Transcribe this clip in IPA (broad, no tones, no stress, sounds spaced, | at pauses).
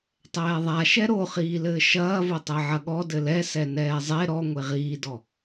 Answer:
tˤ ɛː ðˤ a ʃ ɛ ɾ o χ iː l ɘː ʃ ɐː v o tˤ ɛ ʕ ɐ ɠ ɔ d ɘ l ɛ s ɛ n ɛː zˤ e ɾ ɔ ŋʷ e ʁ iː d ɔ